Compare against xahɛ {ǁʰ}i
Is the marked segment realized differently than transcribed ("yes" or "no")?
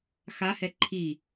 yes